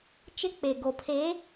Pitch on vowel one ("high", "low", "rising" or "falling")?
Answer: high